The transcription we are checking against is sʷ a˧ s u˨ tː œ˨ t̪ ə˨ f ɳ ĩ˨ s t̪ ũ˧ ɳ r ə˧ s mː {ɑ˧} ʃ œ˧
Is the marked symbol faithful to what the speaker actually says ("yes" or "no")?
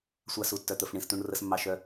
yes